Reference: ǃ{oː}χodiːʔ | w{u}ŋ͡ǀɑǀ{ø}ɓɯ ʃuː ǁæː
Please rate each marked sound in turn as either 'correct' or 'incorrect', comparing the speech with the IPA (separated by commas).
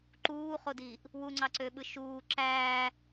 incorrect, correct, correct